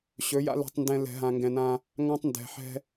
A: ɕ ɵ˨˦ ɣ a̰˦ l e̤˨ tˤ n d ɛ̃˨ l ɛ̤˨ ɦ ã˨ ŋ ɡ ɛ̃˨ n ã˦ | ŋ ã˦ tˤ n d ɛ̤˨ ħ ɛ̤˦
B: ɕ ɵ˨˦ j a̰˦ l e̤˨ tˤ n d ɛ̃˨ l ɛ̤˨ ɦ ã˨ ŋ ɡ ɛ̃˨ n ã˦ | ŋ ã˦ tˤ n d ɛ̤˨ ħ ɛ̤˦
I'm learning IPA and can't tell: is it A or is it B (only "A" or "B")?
B